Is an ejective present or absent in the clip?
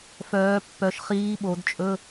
present